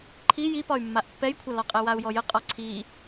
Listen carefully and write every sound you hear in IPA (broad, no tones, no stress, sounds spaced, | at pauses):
ǃʰ i j i p ɒ y̯ mː a ʔ pː ɛ j kʷʰ a l ɒ qʼ ɛ w a u̯ j ɔ j ə qʼ ɒ ǀʰ i